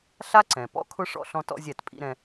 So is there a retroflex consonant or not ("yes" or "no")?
yes